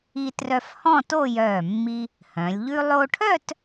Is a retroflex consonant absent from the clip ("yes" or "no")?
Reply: no